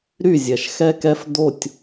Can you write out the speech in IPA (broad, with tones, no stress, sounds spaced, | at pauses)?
ɾ y˥˨ zʲ ɛ˩ ʃ x ɛ˦ k ɛ˦ f d o˥˨ tʲ